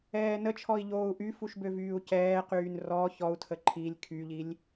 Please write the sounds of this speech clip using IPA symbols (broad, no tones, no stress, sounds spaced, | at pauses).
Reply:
ɛː n ə t͡ʃʰ ɔ i̯ ʎ oː u̯ ʔ y f u ʃ b ø v yː u̯ c ɛː q yː n r ɔ ç ɔ u̯ tʰ ə ǃʰ i lʲ kʰ y ʎ i lʲ